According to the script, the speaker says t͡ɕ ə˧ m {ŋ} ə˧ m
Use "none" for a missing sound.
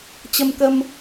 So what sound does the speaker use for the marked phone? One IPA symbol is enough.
k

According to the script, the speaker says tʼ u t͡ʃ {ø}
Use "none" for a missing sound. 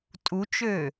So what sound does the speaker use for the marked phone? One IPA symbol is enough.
ø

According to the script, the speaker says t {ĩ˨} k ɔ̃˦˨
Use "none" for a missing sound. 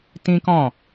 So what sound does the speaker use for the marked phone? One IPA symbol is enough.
ĩ˦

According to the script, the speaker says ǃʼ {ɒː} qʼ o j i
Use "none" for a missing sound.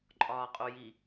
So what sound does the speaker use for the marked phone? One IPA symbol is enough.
ɒː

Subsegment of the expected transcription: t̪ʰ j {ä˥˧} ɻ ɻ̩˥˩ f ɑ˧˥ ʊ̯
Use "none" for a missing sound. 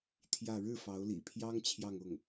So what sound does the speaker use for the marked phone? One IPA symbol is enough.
ä˥˧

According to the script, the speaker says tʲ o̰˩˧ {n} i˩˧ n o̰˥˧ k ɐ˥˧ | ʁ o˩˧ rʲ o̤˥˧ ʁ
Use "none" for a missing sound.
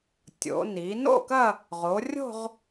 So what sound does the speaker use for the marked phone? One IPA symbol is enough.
n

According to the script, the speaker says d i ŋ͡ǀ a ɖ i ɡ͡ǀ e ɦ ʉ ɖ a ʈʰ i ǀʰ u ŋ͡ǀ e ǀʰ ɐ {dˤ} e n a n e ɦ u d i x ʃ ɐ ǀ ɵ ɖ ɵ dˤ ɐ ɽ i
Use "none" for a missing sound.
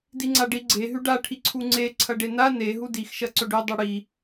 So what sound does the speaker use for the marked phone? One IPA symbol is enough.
ɖ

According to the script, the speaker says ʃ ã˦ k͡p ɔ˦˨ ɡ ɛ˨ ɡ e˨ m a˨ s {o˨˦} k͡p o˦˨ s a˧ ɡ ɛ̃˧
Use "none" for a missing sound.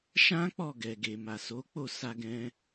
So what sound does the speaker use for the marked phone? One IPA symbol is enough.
o˨˦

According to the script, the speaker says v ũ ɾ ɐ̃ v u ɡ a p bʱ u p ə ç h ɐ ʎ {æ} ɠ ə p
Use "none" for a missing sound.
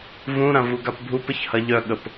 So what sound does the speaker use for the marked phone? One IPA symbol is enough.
œ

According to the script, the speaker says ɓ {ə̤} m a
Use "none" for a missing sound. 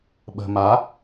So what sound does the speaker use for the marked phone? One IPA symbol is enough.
ə̤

